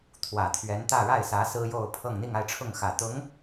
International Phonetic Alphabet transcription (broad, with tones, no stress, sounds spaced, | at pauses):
t̪ʰ w ä˨˩ t̪ʰ ɥ ɛ˧˥ n t̪ ä˥˧ ɻ a˥˩ ɪ̯ s ä˧˥ s ɹ̩˥ j o˥˧ ʊ̯ pʰ ɤ˥˧ ŋ n̪ i˥˧ ŋ a˥˧ ɪ̯ ʈ͡ʂʰ ʊ˥˩ ŋ x ä˨˩ t̪ ʊ˧˥ ŋ